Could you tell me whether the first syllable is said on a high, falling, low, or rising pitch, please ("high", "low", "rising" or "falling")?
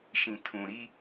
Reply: low